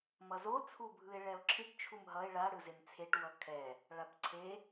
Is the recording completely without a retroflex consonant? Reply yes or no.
no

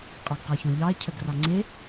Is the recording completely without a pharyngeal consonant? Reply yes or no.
yes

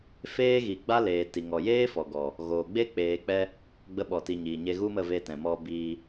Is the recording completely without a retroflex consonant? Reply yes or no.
yes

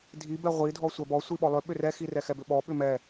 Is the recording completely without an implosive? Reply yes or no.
no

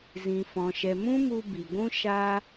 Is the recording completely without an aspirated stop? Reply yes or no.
yes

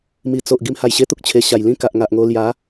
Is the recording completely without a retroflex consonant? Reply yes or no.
yes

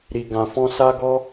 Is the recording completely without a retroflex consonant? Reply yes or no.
yes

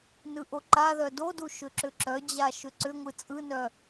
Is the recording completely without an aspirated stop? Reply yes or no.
yes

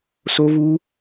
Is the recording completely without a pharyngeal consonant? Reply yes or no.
yes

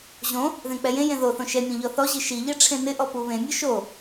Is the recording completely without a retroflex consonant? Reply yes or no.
no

